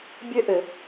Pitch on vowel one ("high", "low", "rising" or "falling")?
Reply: high